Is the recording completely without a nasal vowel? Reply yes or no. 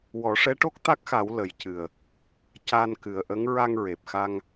yes